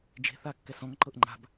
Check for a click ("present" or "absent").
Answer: present